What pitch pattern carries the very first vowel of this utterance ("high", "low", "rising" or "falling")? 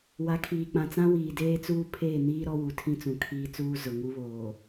rising